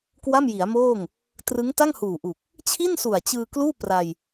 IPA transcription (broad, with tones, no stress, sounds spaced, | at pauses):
k w a˥˩ m j i˩˦ a̯ m oː˥˩ ŋ | t r ɯ˦˥ ŋ t a˥˩ ŋ h uː˨˩ ʔ u˨˩ k̚ | t͡ɕʰ i˥˩ n s u˨˩ a̯ t͡ɕ ɯː˧ k l uː˥˩ p r a˧ j